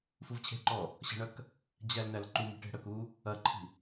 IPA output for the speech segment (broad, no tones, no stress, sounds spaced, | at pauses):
f u v t͡ɕʰ e̤ ǃ ɔ | ɕ ə̤ ɳ ɐ k | d͡ʑ æ l n æ l ǃ u m i̤ ʈ e̤ ɽ ə k u | ɐ ǃʰ i̤